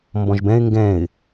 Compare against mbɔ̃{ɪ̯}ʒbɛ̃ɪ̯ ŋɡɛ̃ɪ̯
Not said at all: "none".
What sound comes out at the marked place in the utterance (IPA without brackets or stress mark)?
none